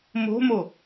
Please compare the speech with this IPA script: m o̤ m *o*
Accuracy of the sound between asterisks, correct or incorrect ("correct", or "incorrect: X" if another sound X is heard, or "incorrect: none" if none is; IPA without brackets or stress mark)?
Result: correct